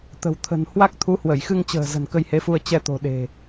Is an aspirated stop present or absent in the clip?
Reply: present